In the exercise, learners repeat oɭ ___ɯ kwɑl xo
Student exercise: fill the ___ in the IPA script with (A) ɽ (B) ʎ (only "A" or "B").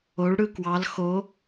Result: A